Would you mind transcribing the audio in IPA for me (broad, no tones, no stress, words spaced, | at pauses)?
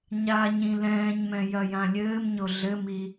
ɲaɲĩ lɛ̃ːɲmɛ̃ jɐjãlʲɘːmɲo ɮɘmi